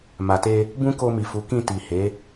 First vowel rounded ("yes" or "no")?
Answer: no